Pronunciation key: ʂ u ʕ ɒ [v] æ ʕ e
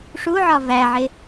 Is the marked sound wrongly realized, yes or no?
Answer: no